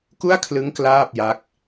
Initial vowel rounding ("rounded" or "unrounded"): rounded